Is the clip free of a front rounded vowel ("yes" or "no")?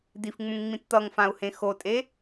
yes